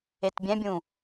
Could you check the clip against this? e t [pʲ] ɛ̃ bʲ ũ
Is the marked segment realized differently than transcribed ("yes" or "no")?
yes